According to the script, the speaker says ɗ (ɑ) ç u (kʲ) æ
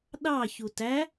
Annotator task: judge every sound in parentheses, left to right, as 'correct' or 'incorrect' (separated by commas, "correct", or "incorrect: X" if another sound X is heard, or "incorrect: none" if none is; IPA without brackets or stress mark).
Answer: correct, incorrect: t